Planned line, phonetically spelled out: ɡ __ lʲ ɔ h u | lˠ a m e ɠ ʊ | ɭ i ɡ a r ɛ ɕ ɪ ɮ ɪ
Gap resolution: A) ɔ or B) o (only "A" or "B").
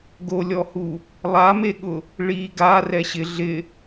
B